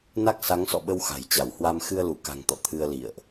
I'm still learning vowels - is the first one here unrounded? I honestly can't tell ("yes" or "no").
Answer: yes